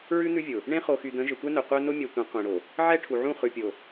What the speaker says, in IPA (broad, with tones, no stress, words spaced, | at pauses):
ɹʉ˦n̪ʉ˦vʲʊ˨ | ɳẽ˦χo˨xy˨d̪ə̃˨˦ ʒə˨tʷɛ˦nœ˨ qʷœ˦ nʊ˦mʲɛ˨ tʷə̃˨˦ qʷẽ˨ɽo˨ | ʕɛ˦ʈʰu˨ʕũ˦˨ χʉ˨pʲo˨